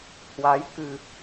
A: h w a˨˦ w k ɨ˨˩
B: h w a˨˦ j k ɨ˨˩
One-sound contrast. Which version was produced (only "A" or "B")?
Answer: B